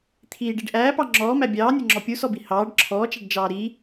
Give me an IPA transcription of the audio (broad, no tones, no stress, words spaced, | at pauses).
t̪ʰiːɖiɖ ʔæːpɑ ŋ͡ǁɔːmæ bʲɑːnʲʌŋ͡ǁɔ pʲusɔbi hɑːɖ ǁʰɔːt͡ʃæɖd͡ʒɑː ɾi